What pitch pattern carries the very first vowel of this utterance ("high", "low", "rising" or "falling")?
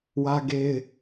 high